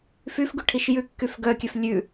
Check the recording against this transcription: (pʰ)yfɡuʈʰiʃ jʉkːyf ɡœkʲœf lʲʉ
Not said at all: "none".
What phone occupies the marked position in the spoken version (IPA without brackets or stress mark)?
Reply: f